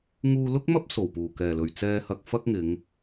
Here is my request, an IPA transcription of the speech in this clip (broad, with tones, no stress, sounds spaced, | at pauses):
ŋ uː˧ l ʊ˥ k̚ m ɐ˥ p̚ s o˨˩ w p uː˨˩ k ɛː˨˩ l ɵ˨˩ ɥ t͡s ɛː˧ h ɐ˧ k̚ f ɐ˥ k̚ ŋ ɪ˨˧ ŋ